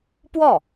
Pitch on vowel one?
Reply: falling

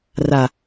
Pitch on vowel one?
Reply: low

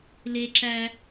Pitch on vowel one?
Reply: high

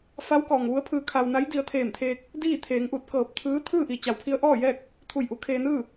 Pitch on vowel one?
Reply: rising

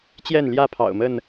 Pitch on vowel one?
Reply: falling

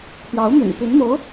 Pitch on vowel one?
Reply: rising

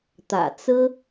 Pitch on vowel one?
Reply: low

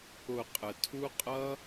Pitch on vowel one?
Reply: low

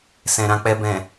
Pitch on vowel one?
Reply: low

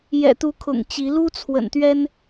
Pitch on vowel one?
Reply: low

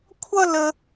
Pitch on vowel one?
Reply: high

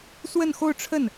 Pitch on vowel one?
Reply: falling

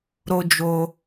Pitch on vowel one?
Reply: high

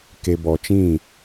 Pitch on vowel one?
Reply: low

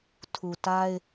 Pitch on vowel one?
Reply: low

